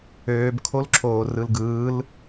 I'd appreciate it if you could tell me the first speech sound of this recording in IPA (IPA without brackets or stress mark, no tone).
øː